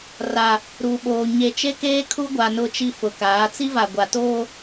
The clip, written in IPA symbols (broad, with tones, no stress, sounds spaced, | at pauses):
r a˨ | ɾ uː˨ ɓ oː˨ ɲ e˨ t͡ʃ e˦ k eː˦ kʰ u˦ ɡʷ a˨ n ʊ˦ t͡ʃ i˦ f ʊ˨ k aː˨˦ t͡s i˦ v a˨ ɡʷ a˨ t oː˦